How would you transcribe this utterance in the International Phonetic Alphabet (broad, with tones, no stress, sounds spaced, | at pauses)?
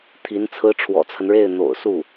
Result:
t̪ʰ i˧˥ n t͡sʰ ɹ̩˥ ʈ͡ʂʰ w ɔ̰˨˩ t͡sʰ ə˦ n ɻ e˥˩ ɪ̯ n̪ o̰˨˩ ʊ̯ s u˥˩